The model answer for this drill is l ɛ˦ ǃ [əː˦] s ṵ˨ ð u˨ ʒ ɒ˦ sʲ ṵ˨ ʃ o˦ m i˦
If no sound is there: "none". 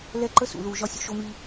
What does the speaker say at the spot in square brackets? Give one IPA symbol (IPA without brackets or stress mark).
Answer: ə˦